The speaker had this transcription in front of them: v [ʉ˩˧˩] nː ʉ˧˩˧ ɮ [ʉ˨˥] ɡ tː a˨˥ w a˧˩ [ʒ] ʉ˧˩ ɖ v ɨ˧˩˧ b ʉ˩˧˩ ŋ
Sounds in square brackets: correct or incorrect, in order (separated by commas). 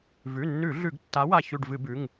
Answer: correct, incorrect, incorrect